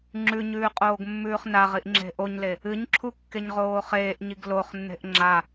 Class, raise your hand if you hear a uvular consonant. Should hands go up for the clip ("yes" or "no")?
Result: yes